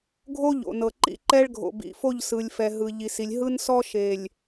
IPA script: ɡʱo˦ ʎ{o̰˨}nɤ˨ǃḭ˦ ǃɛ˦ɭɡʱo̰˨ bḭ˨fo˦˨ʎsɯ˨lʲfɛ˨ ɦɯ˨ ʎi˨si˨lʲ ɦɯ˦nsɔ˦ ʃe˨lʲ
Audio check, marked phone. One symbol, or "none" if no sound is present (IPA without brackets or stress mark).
o̰˨